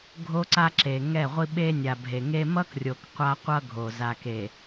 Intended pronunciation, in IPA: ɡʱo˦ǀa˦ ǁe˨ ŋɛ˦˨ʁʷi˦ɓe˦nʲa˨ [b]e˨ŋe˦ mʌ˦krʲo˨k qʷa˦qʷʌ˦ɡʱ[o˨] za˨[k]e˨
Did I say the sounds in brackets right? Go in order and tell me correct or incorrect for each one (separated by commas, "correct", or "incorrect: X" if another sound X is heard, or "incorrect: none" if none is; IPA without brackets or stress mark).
incorrect: bʱ, correct, correct